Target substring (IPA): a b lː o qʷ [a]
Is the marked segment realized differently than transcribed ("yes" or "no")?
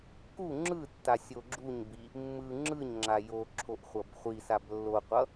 yes